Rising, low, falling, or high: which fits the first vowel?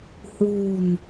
low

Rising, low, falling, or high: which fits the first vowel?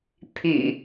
low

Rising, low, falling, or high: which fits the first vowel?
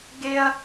high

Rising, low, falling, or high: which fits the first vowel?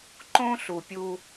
high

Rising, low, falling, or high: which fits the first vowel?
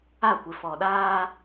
falling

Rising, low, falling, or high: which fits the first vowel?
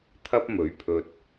high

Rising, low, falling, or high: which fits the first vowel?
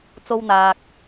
high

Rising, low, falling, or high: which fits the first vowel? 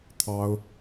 high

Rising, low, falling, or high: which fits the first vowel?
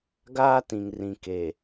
high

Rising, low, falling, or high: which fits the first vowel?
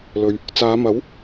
low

